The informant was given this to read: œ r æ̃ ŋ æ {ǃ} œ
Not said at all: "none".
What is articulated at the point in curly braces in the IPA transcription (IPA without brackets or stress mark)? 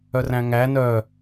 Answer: n